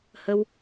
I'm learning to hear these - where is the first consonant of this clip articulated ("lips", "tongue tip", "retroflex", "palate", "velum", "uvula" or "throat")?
throat